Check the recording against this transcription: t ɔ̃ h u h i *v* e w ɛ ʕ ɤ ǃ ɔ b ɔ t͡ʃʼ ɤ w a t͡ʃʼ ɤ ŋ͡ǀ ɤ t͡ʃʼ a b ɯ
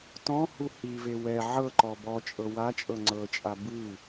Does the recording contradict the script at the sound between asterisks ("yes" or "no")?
no